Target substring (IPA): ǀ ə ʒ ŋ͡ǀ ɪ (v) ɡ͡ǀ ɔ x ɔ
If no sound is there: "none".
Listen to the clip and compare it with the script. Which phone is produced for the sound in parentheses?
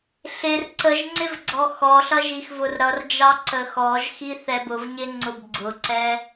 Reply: v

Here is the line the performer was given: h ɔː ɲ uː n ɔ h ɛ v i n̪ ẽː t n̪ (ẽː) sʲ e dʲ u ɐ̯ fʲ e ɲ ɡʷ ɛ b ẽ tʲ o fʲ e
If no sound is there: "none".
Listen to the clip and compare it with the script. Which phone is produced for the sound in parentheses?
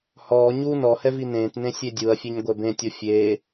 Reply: ẽ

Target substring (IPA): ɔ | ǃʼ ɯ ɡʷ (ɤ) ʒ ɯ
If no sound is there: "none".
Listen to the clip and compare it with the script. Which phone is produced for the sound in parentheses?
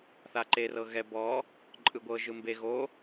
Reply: ɤ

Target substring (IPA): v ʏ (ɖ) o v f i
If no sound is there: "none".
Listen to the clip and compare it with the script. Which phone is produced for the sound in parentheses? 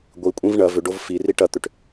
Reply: ɖ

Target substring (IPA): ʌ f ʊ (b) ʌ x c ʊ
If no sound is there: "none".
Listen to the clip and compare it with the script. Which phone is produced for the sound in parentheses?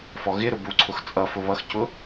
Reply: β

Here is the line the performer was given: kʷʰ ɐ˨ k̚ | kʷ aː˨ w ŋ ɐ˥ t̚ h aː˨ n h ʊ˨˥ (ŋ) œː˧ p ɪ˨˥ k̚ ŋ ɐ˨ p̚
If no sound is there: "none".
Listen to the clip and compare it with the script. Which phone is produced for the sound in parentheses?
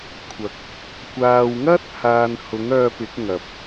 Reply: ŋ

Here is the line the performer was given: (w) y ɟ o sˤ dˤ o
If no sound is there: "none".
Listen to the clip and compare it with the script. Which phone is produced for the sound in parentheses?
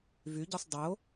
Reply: v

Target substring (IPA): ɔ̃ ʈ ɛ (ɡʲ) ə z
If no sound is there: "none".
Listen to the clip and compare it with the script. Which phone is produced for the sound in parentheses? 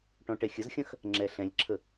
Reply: xʲ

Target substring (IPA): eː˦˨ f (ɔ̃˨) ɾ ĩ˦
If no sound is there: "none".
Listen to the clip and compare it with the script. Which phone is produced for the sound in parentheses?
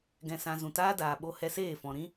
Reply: ɔ̃˨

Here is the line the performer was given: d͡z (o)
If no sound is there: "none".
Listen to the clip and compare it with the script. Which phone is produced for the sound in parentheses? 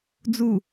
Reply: u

